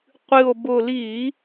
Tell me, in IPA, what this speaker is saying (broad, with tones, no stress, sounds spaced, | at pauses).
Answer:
qʷ ɨ˨˩ o̯ b ʊ˨˩ l i˧˩˧